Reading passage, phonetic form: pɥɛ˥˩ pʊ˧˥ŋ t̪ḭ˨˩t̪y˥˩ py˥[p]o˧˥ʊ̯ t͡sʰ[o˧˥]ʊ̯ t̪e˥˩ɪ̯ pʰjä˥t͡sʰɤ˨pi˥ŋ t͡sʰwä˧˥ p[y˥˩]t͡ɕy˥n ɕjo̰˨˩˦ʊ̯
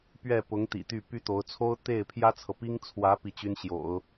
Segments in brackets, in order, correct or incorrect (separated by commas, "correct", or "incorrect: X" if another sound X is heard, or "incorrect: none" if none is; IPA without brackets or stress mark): incorrect: t̪, incorrect: o˥, incorrect: i˥˩